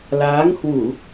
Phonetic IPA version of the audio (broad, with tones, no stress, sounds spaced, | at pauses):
l aː˨˦ ŋ h w u˧˩˨